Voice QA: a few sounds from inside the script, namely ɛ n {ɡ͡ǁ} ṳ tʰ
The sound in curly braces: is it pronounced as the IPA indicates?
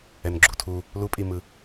yes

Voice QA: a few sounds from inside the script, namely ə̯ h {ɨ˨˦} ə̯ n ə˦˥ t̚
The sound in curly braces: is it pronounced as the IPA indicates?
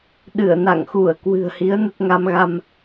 no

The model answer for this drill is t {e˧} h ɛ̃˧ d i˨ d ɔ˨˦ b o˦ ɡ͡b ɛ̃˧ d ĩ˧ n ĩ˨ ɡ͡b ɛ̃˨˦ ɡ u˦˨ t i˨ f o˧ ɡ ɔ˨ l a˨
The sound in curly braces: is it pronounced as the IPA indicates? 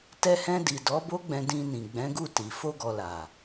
no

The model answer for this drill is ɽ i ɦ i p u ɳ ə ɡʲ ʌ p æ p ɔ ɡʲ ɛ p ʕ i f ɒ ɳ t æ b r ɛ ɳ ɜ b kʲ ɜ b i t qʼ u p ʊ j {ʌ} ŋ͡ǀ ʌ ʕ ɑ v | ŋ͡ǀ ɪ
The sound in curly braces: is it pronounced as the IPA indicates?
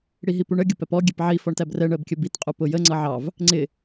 no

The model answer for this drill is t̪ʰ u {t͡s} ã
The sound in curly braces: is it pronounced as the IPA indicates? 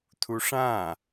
no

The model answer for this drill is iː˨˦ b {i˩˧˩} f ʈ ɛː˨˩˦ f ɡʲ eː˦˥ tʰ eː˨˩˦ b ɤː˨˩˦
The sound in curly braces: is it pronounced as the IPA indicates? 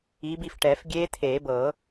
yes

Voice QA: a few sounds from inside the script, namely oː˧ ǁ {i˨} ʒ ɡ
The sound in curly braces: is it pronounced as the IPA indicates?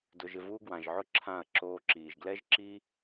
no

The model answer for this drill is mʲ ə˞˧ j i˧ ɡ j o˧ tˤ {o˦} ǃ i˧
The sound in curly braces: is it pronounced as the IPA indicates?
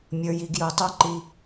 yes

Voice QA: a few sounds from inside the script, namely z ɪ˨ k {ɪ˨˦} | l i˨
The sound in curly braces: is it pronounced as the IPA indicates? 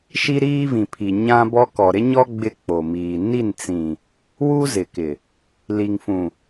no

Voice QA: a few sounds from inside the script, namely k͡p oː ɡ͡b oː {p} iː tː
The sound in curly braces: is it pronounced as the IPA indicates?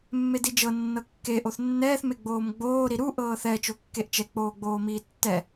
no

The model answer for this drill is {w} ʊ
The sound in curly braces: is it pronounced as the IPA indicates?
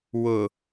yes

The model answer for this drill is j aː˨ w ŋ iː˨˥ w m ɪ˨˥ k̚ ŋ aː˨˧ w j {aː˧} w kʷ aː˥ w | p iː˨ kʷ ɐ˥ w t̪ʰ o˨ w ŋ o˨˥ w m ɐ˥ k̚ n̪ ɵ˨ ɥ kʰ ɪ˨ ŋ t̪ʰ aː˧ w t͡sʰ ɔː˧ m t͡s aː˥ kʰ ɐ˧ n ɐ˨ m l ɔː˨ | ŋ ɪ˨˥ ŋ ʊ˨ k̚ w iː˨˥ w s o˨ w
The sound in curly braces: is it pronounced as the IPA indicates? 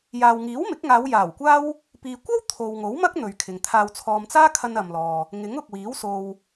no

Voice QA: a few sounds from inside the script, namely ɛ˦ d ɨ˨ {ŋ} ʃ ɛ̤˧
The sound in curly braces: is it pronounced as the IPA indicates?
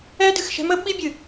no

